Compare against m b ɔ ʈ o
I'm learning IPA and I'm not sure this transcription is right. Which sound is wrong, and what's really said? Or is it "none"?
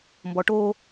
none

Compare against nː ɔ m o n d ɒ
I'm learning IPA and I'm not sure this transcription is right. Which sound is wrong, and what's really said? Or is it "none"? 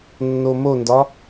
ɔ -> o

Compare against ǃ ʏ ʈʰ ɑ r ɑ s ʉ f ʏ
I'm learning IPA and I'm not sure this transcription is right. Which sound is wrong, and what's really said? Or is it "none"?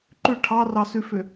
none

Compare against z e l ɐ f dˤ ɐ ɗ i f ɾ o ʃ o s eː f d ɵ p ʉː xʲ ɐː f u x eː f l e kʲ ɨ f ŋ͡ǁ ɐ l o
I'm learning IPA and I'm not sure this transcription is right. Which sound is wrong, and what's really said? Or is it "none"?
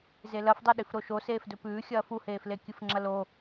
x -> h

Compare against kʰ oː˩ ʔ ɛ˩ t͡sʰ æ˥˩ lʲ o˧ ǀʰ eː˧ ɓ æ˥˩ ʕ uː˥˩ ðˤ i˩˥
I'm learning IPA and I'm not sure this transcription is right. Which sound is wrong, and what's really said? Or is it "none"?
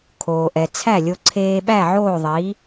uː˥˩ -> oː˥˩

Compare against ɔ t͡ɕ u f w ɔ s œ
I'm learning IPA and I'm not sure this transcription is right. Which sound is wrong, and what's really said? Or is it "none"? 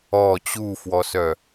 none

